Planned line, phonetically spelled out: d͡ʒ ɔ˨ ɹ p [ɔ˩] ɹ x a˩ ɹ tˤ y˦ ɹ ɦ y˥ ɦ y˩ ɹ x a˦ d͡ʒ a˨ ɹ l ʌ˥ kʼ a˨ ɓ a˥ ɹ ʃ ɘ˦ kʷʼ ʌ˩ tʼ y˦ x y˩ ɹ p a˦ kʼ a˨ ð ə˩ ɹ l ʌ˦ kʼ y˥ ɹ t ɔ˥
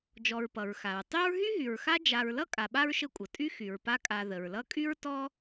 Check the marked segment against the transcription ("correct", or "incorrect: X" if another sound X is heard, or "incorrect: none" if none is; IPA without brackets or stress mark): incorrect: ʌ˩